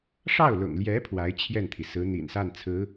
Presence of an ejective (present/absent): absent